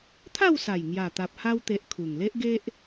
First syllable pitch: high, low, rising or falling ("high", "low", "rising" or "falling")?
falling